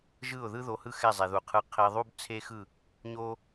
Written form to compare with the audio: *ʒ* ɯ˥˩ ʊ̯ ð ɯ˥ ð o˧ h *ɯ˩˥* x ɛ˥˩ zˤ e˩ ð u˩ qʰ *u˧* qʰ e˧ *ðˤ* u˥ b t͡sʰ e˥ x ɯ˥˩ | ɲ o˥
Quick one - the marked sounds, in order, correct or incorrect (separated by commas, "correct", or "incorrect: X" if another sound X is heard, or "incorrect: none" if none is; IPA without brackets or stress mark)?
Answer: correct, incorrect: ɯ˥˩, incorrect: ɯ˧, correct